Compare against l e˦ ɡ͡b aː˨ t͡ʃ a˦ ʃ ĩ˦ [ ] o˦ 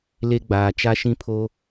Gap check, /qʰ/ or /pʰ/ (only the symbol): pʰ